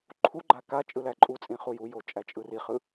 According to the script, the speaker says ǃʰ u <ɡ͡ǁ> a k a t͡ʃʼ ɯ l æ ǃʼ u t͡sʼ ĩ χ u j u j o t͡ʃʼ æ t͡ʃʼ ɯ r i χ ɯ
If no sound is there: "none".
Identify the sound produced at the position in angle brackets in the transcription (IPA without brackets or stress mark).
ɡ͡ǃ